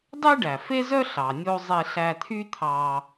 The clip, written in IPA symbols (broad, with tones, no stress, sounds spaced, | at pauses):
dˤ e˥ ɖ æ˩ f e˥ z œ˥ ɬ ɑ˩ nʲ o˧ zˤ e˧ ɬ æ˧ t̪ʰ y˥ t̪ʰ ɑ˧